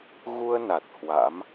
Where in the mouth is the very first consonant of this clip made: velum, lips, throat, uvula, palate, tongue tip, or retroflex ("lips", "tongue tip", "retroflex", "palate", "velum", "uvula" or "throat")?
velum